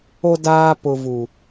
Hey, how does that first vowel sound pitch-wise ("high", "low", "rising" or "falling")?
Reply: high